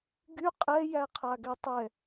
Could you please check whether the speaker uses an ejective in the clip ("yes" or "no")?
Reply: yes